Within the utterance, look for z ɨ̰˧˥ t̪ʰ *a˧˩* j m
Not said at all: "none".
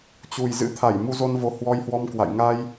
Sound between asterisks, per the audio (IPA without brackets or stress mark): a˧˩